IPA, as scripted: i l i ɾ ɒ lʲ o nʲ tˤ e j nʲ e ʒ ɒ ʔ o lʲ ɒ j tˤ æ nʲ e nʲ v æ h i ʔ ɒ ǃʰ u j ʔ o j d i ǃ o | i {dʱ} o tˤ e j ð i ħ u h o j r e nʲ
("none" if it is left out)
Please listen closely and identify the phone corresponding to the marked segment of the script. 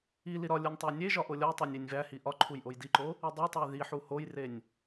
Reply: dˤ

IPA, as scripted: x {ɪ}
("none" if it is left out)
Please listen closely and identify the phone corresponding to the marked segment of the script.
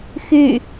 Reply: y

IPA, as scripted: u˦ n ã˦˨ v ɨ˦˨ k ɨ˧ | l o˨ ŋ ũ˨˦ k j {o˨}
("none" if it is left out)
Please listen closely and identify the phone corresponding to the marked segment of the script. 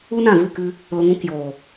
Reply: oː˨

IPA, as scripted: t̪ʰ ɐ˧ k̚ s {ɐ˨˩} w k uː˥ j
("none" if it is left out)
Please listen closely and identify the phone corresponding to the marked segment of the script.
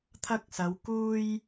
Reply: ɐ˨˧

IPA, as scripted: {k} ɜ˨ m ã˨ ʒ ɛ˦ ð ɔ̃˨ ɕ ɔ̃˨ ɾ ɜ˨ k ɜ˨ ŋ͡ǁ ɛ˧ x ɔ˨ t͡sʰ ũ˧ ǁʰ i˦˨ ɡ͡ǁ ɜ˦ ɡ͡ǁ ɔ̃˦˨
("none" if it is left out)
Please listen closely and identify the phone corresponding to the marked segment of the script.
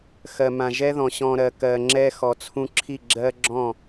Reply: x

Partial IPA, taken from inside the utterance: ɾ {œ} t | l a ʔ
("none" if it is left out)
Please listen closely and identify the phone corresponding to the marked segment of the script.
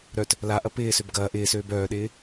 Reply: œ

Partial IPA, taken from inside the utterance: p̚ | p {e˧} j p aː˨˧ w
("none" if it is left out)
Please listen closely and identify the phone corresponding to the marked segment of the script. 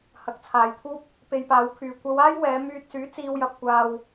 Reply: e˧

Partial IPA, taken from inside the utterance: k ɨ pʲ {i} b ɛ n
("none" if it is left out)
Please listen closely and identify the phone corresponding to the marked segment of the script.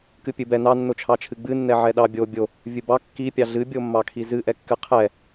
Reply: ɨ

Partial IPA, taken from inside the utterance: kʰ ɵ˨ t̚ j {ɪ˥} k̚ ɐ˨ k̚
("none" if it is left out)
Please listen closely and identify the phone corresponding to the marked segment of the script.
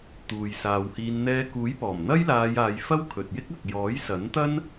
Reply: ɪ˥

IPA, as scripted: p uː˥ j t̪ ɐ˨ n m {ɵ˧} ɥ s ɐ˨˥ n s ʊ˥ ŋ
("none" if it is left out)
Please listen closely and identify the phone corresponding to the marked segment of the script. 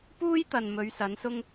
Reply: ɵ˨˧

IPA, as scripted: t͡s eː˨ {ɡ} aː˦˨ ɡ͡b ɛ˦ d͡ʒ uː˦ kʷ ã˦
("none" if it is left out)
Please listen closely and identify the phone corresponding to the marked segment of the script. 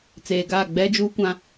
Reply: ɡ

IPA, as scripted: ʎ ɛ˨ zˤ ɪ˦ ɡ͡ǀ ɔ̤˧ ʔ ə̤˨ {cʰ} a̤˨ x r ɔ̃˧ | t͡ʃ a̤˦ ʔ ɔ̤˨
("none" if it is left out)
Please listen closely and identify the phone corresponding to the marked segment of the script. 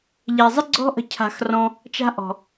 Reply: cʰ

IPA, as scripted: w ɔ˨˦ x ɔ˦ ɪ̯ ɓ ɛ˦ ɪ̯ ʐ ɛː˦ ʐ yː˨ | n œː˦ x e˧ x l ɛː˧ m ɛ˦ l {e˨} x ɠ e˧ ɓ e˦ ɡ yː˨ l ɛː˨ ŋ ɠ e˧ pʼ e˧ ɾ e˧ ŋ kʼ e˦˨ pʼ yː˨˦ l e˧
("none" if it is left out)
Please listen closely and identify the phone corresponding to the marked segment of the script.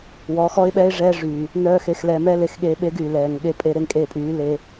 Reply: e˨˦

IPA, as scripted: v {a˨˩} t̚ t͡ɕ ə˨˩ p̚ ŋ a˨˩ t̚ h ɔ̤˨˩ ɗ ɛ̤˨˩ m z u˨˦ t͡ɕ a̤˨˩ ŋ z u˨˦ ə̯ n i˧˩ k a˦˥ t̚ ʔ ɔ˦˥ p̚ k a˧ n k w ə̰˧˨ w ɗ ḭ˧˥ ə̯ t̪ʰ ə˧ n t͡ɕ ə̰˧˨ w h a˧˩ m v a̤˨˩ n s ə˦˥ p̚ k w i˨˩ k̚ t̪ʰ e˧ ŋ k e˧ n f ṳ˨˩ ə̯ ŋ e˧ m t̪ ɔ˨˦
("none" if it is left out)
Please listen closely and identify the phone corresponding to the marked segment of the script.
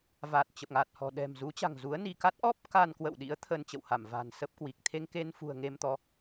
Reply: a˨˩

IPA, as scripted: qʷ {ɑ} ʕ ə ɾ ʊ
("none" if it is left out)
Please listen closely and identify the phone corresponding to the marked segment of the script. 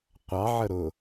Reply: ɑ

